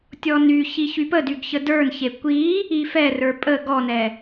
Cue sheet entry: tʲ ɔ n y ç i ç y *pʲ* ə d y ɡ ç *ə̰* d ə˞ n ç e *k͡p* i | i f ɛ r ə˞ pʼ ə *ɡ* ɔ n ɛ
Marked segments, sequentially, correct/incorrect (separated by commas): incorrect, incorrect, incorrect, correct